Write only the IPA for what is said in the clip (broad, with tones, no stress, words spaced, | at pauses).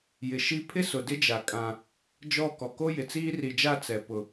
jɪ˨ʃi˦ pʰɪ˦sʊ˨dɪ˦d͡ʒa˨ kʼã˦ | d͡ʒɔ˦˨ kɔ˨ko˦jɪ˨ t͡siː˦ri˨d͡ʒa˦˨ t͡sɛ˨ pʊ˨